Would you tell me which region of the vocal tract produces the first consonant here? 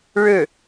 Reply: retroflex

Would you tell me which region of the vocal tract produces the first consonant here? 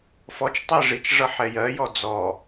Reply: lips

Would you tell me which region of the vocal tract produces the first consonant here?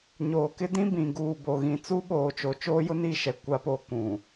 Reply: palate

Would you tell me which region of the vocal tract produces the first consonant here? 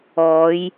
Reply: palate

